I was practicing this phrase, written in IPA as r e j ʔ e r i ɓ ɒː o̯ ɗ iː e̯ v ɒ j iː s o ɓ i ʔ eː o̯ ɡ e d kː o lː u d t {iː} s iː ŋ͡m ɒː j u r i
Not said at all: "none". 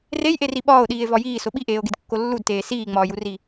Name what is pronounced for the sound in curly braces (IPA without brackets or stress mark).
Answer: eː